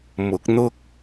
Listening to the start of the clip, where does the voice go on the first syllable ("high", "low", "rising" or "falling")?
rising